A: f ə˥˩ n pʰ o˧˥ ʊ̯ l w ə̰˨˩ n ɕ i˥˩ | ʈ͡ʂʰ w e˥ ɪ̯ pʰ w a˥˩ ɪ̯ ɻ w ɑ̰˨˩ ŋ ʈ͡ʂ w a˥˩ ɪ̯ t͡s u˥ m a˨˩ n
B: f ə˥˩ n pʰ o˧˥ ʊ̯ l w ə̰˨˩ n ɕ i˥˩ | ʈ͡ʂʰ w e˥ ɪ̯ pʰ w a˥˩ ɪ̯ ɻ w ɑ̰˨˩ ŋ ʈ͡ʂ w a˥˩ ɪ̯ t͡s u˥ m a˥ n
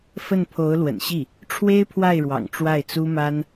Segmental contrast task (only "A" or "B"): B